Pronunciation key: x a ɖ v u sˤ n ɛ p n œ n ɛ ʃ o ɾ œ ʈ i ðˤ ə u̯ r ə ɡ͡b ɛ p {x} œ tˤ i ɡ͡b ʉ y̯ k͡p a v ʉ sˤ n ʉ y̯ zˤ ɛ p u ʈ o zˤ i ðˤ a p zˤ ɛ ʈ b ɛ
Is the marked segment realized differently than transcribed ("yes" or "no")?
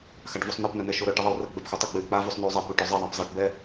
no